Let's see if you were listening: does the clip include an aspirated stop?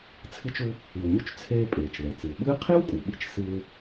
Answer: yes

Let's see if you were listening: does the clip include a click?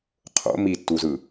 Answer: no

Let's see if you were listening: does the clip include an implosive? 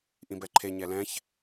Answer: no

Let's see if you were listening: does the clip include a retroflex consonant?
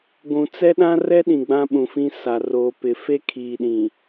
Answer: no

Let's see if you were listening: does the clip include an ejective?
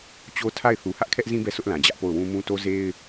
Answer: no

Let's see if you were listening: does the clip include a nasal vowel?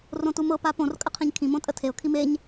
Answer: yes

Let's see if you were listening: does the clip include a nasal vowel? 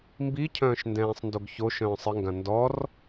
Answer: yes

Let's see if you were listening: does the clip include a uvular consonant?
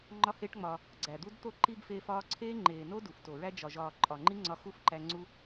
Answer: no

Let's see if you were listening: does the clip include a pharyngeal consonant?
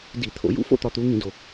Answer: no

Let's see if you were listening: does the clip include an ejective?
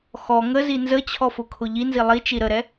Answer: no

